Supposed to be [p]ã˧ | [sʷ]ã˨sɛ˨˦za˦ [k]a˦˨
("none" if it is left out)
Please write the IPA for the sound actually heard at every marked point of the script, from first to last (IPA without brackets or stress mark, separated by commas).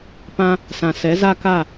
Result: p, s, k